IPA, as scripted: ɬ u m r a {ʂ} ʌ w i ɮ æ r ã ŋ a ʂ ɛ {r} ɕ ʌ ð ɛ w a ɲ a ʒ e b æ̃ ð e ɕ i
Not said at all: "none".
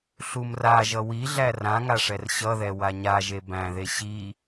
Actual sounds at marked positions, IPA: ʒ, r

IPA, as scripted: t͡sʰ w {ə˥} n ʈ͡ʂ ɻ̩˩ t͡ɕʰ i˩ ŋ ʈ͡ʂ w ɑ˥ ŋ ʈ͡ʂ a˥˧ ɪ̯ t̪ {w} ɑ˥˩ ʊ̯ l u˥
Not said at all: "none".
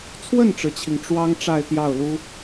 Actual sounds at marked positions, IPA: ə˥˩, j

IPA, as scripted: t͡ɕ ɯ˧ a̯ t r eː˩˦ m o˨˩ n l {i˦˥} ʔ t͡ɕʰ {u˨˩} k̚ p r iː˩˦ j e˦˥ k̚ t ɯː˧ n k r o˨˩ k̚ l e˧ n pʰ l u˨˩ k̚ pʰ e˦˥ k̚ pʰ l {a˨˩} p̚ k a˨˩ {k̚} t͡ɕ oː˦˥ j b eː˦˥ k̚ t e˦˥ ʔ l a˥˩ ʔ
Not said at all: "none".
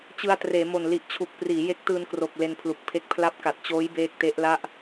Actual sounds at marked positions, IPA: i˨˩, u˨˩, a˦˥, t̚

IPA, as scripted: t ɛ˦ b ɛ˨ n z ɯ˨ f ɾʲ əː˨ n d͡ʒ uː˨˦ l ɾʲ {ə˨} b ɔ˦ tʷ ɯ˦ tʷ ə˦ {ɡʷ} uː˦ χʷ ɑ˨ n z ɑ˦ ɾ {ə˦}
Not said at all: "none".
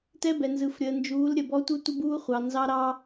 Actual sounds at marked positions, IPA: ə˨, b, ɑ˦

